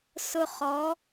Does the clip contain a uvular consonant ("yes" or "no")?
yes